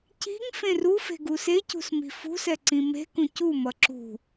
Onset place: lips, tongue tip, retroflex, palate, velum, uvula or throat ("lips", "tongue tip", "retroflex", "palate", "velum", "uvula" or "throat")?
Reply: palate